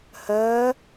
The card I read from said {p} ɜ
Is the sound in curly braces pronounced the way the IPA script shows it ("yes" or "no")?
no